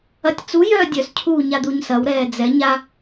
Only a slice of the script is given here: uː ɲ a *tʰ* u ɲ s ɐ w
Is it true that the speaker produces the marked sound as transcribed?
no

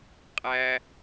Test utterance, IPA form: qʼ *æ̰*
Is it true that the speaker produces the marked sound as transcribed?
no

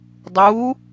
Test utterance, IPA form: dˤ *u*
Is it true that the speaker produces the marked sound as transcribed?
yes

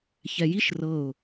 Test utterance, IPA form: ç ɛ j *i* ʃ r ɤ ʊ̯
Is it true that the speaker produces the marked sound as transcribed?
yes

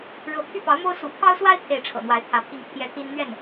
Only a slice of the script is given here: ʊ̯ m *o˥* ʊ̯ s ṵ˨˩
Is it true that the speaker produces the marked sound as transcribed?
yes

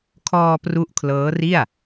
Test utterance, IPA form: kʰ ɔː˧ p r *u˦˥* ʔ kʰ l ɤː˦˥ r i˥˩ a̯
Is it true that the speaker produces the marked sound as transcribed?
yes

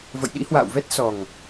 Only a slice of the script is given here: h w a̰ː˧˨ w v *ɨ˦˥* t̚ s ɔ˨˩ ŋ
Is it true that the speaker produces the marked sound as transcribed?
no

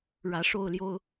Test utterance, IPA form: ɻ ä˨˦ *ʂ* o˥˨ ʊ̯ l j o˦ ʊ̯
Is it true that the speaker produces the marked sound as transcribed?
yes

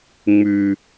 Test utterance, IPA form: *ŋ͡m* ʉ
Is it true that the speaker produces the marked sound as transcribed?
yes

